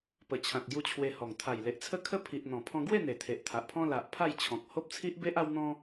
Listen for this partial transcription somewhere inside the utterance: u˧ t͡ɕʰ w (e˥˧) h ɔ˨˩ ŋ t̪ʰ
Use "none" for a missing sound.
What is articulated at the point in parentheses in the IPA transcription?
e˧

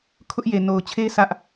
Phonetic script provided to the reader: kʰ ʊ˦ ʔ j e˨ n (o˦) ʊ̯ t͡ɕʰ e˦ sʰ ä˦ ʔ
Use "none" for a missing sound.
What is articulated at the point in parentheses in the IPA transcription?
o˨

